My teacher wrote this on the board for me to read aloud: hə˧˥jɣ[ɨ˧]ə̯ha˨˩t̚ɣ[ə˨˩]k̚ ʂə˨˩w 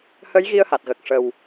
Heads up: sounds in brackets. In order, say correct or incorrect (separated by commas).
incorrect, correct